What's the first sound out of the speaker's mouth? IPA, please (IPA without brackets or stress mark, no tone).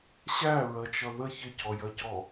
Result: ɕ